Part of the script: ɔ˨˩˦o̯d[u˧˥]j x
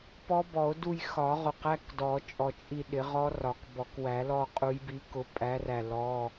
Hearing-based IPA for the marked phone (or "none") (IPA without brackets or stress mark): u˦˨